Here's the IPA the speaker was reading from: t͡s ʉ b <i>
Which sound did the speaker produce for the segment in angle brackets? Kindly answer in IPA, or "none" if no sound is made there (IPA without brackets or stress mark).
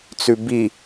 i